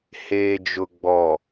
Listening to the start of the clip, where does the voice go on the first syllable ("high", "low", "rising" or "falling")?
low